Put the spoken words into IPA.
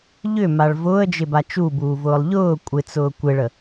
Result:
ʎʏmaɭ vʊːə̯d͡ʒɪba t͡ʃubuːvʊːlˠ ʎʊː kʷʼɪt͡sʊː kʷeɭə

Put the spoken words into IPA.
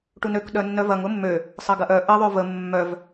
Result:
ʈunøk ɗœnːœvɐŋ ʊmːø | sˤɐɡɐʔœ ʔə ðˤøvə mːœv

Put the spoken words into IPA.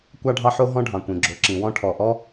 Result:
kʷɑ˥ɖʱɑ˥ ħo˥ɦɔ̃˥ɖʱɑ̃˩kʷĩ˩ ɡ͡ǁo˩ǁĩ˩wɔ̃˥ ʈʰɔ˩ʔɔ˥

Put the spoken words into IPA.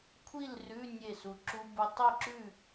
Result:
kʷʰi˥˨lrʉ˧˥˧ nʲe˥˨su˧ǁu˦˥bu˦˥ tˤi˥˨ǁʉ˥˨

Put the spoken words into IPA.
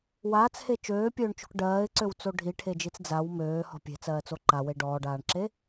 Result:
waːt͡she t͡ʃøːpʲøːɳt͡ʃo̤k ɖɜːɪ̯ǀøwt͡so ɖʱiʈʰed͡ʒit͡s d͡zaw møːhɔ̤ pʲe̤t͡sɜːt͡so ǃawe ɖɔːɖaːɳǁe

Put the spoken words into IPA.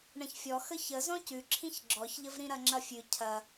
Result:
ɳɐ̃çfʲɔ xəçə zɔ̃cʉǁʰĩç ɡ͡ǁɔçʎəv ɾĩɾɐŋ͡ǁɐfʲʉ cʰɐ

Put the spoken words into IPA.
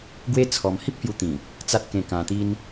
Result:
ɡwe˦t͡sʰɔ˧m hi˦p̚hju˧t̪ĩ˨˩ | t͡sa˦t̚kẽ˧kã˧t̪i˦n

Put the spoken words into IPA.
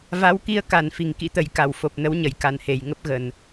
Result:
va˨˦wki˧ə̯ka˧˩n fi˨˩ŋkḭ˧˥t̪ə˨˩jka˧˩w fo˨˩p̚nə˨˦wɲə˧˩j ka˨˩nhe˨˩jŋə˦˥p̚ɣə˧˩˨n

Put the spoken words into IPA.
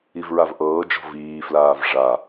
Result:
ivɹavʔɤːd͡ʒɔ̤ viːflaːv ʐa

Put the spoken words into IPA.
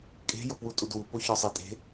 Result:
kʼe̤ jopwutʼudwu poçɒsˤi tʼe̤

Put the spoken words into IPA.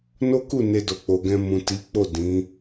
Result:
no˦ku˦˨ ne˧do˨k͡po˨ɡɛ̃˧ mũ˨ti˨˦k͡po˦˨ dĩ˨˦

